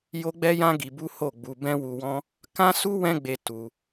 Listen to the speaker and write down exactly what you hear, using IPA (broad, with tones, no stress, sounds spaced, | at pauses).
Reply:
j o˦ ɡ͡b ɛ˦ j ã˦ ɡ i˧ b u˦ h o˦˨ ɡ͡b u˧ b ɛ̃˦ w u˧ w ɔ̃˦ | k ã˦ s u˦ w ɛ̃˦ ɡ͡b e˧ t u˧